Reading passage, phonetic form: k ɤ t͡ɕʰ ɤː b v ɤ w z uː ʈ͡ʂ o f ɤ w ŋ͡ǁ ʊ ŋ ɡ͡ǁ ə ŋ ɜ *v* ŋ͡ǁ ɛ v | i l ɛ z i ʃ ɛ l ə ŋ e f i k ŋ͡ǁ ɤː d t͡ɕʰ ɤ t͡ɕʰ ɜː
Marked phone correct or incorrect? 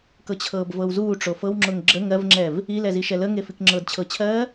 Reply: correct